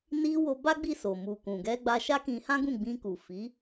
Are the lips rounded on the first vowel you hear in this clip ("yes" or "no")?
no